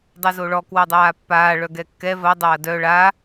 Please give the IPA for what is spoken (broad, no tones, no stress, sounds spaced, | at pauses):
dˤ o z o ɭ ɔ k w o dˤ aː pː aː ɭ œ ɡ ɛ kː ɛ v ɐ dˤ ɐː d œ ɭ a